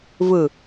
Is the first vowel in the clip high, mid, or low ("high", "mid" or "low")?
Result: high